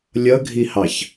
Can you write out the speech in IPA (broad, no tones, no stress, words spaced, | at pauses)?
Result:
lʲʌɡʱihɑç